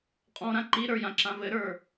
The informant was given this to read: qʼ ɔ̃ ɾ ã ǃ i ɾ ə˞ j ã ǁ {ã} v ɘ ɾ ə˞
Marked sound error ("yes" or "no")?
no